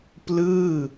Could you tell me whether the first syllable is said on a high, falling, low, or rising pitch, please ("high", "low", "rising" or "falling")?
falling